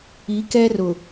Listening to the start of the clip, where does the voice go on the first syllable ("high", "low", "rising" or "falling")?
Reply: rising